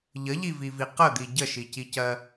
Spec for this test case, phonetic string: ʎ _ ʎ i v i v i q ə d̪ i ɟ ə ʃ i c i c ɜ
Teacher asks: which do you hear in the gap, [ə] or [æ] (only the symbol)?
ə